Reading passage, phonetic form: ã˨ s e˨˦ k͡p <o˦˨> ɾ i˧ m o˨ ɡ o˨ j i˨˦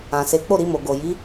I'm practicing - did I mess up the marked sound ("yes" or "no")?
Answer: no